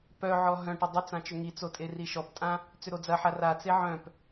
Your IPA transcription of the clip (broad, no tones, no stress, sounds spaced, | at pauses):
p œ ʕ ɔ ɦ œ̃ ʈ ɪ dˤ ʏ t͡s ã t͡ʃ ʏ ŋ i t͡s o tʼ e r i ʃ ɔ p tʼ ã | t͡s ʏ ɾ o d͡z ɐ ħ a r a t͡s e ʕ œ̃ p